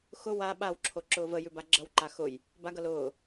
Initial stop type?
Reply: implosive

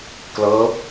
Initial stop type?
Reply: plain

